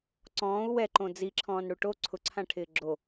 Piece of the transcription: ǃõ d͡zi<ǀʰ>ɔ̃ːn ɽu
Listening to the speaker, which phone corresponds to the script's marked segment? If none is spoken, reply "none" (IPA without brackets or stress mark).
ǁʰ